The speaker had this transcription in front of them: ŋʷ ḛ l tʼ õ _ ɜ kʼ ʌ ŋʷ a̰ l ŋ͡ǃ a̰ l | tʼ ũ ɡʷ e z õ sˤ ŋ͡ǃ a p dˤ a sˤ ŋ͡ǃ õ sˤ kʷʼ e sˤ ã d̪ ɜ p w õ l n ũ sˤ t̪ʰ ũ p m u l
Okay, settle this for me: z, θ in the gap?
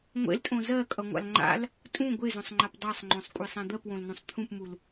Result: z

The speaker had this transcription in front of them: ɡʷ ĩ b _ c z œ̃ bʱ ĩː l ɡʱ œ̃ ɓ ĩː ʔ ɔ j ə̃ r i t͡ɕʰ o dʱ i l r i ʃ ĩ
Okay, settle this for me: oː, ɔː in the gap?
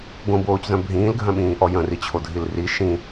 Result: oː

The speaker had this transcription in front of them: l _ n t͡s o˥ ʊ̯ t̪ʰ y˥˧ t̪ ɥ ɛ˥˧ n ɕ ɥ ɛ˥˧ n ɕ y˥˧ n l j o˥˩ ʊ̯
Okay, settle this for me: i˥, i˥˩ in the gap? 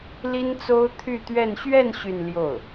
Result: i˥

